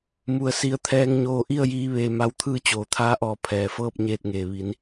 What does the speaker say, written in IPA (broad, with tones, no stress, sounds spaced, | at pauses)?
m u˧ ə̯ s i˧˥ ə̯ t̪ʰ ɛː˧ ŋ ɲ oː˧ ʔ i˥˨ ə̯ j iː˧ ʋ eː˧ m a˧˥ w t̪ʰ ɯː˥˨ t͡ɕ oː˩ t̪ʰ aː˧˥ ʔ ɔː˧˩ pʰ ɛː˩ f ɤː˥˨ p̚ ɲ eː˥˨ t̚ ŋ eː˧˩ ʋ i˩˧ n